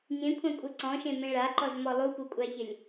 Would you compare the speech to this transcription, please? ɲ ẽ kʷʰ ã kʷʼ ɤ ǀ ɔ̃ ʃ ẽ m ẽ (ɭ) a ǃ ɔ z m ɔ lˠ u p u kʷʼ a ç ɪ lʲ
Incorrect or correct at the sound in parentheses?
correct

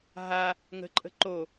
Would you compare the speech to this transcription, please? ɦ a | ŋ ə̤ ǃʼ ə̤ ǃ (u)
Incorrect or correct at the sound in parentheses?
incorrect: o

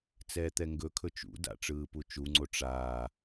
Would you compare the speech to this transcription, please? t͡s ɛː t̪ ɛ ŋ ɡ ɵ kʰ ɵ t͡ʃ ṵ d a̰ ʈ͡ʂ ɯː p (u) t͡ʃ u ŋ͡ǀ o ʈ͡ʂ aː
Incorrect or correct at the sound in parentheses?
correct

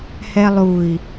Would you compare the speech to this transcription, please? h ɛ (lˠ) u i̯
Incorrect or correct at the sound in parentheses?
correct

